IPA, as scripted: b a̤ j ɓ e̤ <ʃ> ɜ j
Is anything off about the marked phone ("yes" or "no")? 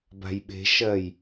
no